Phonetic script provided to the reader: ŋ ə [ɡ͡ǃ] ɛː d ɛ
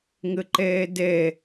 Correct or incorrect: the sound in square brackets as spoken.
incorrect: ǃ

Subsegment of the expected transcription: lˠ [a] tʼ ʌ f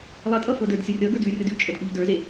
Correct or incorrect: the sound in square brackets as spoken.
incorrect: ʌ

